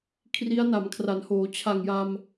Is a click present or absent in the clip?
absent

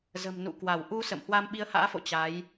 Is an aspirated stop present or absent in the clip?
absent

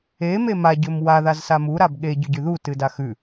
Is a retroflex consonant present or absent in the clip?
absent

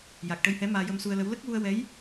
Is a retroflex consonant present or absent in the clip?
present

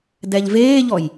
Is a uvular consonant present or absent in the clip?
absent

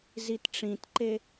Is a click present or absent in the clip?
present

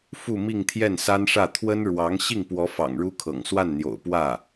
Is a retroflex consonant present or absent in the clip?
present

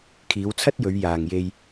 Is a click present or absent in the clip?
absent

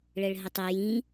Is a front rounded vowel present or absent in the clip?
absent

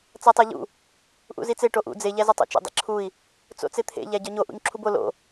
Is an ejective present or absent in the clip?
absent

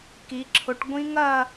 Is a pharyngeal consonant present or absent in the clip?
absent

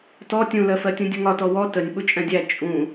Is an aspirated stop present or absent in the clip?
absent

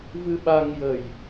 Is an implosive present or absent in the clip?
present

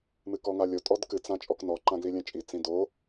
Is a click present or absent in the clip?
present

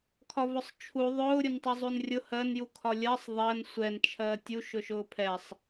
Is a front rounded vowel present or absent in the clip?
present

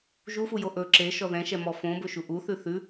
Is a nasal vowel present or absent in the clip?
present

